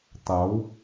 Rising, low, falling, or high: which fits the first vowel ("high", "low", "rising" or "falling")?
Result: rising